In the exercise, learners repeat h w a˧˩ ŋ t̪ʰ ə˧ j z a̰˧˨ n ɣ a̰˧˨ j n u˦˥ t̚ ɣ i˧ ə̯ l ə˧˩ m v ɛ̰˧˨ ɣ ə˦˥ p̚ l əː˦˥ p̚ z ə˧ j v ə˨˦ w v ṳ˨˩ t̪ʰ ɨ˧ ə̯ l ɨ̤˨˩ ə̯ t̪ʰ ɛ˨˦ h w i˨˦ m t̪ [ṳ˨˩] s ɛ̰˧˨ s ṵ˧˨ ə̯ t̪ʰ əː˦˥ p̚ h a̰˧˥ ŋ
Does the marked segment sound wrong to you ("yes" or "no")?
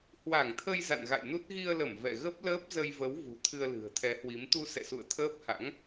yes